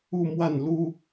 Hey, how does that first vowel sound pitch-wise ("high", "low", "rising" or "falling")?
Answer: falling